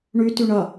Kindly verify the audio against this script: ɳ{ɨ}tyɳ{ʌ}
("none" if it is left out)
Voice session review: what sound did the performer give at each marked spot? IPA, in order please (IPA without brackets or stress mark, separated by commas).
y, ʌ